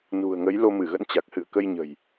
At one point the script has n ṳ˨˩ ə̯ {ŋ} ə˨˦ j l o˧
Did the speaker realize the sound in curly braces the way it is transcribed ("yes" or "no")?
yes